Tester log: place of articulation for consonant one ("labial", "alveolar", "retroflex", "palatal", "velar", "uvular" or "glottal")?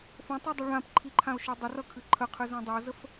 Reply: labial